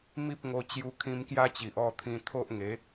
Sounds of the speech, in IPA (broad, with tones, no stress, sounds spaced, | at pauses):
m i˦ p̚ ŋ o˧ t͡ɕ j u˧ kʰ ĩ˧ m k j a˦ t͡ɕ i˨ ʔ ɔ˥˧ t̪ʰ ĩ˧ t̪ʰ o˦ ʔ ŋ e˨˦